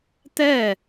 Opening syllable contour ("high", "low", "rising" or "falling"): falling